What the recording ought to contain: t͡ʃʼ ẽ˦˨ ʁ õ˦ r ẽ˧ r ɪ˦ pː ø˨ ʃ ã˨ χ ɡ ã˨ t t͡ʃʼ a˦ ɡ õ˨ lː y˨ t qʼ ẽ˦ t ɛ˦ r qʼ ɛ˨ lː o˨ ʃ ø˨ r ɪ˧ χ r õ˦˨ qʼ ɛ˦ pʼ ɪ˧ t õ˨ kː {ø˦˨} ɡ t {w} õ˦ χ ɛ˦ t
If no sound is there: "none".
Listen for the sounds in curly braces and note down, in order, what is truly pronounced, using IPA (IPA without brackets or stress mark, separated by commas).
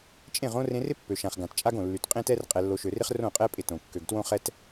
ø˨, w